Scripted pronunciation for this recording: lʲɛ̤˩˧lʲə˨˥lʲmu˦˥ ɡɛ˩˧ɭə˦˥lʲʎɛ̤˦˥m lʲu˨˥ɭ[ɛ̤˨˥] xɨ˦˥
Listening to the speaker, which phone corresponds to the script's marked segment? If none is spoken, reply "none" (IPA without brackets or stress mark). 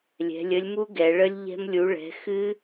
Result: ɛ̤˨˥